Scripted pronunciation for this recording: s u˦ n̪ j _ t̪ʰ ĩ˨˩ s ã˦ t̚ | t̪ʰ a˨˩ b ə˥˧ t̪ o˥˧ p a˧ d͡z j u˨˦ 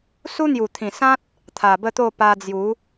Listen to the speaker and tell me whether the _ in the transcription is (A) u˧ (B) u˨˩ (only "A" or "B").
B